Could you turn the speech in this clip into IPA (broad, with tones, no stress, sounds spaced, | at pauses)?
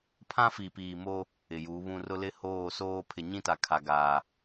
pʰ ã˦ f i˨ p iː˨ m o˦ | ɪ˨ j u˨˦ β ũ˦ r ʊ˦ l ɪ˦ h oː˦˨ s oː˦ pʰ ɪ˨ ɲ ĩ˦ t a˨ kʰ a˨ ɡ aː˨